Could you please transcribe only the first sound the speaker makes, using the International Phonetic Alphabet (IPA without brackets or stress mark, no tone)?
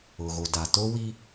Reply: ʊ